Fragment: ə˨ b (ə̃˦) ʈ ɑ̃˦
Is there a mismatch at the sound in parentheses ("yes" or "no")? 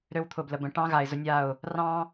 yes